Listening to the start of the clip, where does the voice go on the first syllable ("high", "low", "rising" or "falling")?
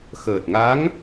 low